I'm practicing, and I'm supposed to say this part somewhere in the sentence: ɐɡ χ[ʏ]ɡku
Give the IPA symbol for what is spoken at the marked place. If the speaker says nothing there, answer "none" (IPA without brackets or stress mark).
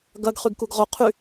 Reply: y